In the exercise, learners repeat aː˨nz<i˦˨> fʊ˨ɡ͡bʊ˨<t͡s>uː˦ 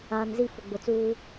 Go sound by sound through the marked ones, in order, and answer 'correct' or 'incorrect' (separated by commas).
correct, correct